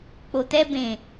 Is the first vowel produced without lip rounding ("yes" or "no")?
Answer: no